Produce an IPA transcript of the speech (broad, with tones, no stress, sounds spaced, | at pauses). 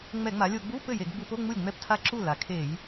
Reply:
ŋ͡m ɛ˧˩˧ ŋ͡m a˩˧ lʲ o˧˩˧ ɡ͡b u˧˥˧ p ɘ˥˩ j e˧˩˧ ɡ ɡ͡b u˧˩˧ p o˧˥˧ ŋ͡m u˥˩ lʲ ŋ͡m ɛ˥˩ p tʰ a˥˩ ǁ u˥˩ l a˩˧ kʰ e˧˩˧ j